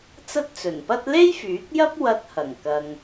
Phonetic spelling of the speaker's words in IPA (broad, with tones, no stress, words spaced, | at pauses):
t͡sɐ˥t̚t͡sɵ˨˩npɐ˥t̚ le˥jfyː˨˥k̚jɐ˥p̚ wɐ˧t̚hɐ˨˩ŋ kɐ˧ŋ